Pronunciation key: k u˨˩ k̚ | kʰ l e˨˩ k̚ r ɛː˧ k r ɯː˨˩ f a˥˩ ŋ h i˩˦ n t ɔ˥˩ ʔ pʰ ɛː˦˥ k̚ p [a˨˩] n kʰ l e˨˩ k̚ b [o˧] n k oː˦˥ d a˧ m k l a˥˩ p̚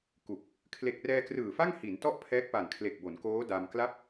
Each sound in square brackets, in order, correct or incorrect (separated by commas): correct, incorrect